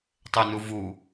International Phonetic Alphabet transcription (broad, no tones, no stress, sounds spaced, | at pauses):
tˤ e n u v u